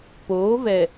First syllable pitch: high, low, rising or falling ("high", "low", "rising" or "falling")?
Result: rising